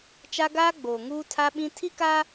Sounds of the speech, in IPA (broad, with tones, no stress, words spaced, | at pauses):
t͡ʃa˦ ɡaː˦ɡ͡boː˨ ŋuː˦tʰa˦ɓĩ˦ tʰi˦ka˦